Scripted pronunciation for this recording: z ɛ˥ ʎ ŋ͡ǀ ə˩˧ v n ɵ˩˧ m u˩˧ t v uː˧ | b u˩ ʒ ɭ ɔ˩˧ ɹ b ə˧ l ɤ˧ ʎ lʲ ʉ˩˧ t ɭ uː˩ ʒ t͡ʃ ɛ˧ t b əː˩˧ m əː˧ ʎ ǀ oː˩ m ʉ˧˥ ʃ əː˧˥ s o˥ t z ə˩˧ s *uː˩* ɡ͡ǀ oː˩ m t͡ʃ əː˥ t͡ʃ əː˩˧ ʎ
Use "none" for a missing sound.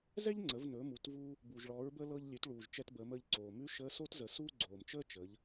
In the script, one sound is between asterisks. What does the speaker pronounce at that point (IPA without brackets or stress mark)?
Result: uː˥